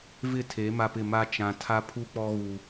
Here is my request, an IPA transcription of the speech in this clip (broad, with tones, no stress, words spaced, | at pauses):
vɪ˦˨tʰe˨˦ ma˦pɪ˦˨ ma˦ t͡ʃã˨tʰa˦pʰu˦ k͡pɔ˦ɣu˨